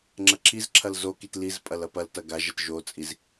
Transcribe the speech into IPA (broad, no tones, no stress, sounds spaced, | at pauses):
ŋ͡ǁ ɐ ǁʰ i z ǁʰ ɐ l z o k i t l i z pʼ ɐ l ɐ p ɐ l t ɐ ɡ a ʒ ɐ t ʒ o t͡sʼ i z